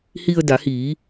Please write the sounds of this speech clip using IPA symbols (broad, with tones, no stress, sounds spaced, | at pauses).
h i˧ ə̯ d a˩˧ h iː˩˧